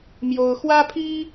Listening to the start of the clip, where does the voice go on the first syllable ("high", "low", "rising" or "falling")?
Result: high